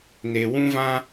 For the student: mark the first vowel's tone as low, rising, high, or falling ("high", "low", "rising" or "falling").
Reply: low